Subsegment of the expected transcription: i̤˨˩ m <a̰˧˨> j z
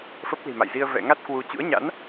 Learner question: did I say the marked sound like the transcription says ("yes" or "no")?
yes